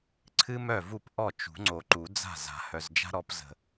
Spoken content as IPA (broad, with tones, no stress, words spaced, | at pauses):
ǀʰɨ˥mœ˥˩ vu˥˩pʔɔ˥˩ t͡ʃṳ˨˩˦ŋ͡ǀo˨ǃu˨˩˦d͡za̤˥˩ za̤˨˩˦hœ˨zd͡ʒa̤˥ɾɔ˨˥p zə̤˨